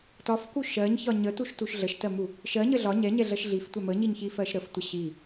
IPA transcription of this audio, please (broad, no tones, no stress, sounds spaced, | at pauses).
t ɒ f k u ʃ ɜ ɲ ç ɒ ɲ ə t u ʃ t u ʃ ɮ ə ʃ t ɜ m u | ʃ ɜ ɲ ə ɮ ɒ ɲ ɛ ɲ ɛ ɮ ɜ ʃ ɮ i f tʷ ɛ m ə ɲ i ɲ ç i f ɜ ʃ ɾ ə f tʷ ə ɕ i